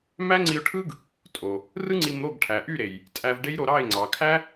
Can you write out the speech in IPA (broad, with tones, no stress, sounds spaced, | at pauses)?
m æ˦ ŋ͡ǀ i˧ ʊ̯ ʈʰ ɯ˦ ɡ | tʼ o˨ | r ɯ˦ ŋ͡ǀ i˧ m ɾ o˦˨ ɡ ʈʰ æ˨ ʔ y˦˨ ɾ e˨ j | tʼ æ˧ v ɖ e˦ j ɾ o˧ ɾ ɑ˦˨ ɪ̯ ŋ͡ǀ ɑ˨ kʰ æ˦